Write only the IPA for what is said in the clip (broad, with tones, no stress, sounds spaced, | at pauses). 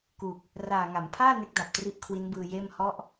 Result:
k u˨˩ k̚ | r aː˨˩ ŋ a˩˦ m pʰ aː˥˩ n e˦˥ k̚ d a˨˩ p̚ t r i˦˥ ʔ kʰ w i˦˥ n b ɯː˧ j eː˥˩ m h ɔ˦˥ ʔ